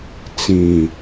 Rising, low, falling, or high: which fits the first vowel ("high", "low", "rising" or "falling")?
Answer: low